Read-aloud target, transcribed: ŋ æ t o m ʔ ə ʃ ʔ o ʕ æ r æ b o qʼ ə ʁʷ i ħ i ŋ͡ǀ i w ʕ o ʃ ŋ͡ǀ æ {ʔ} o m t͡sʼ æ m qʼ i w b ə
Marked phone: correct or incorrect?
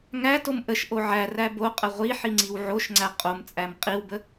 incorrect